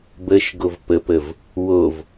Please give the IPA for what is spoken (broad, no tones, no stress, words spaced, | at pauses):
bəʃ ɡovpəpəv | wov